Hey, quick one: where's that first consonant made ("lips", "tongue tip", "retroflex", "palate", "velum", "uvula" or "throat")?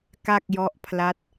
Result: velum